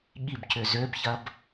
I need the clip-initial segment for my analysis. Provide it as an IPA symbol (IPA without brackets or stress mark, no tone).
ɠ